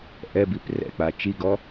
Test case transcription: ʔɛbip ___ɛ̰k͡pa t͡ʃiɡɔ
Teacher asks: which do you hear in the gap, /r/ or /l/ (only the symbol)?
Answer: r